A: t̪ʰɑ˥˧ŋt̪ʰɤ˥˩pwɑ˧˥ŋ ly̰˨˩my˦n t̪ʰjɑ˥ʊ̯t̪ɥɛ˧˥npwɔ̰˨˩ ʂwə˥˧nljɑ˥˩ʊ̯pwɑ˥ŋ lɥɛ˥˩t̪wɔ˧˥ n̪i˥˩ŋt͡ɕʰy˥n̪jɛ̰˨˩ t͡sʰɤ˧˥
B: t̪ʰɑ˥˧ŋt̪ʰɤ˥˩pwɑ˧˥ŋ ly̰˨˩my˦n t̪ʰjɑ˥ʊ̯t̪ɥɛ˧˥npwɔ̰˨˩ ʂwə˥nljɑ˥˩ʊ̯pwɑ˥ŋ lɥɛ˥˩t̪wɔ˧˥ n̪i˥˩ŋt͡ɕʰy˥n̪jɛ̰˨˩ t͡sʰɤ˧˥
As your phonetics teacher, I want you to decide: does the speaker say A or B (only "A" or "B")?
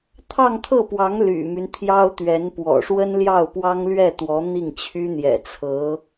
B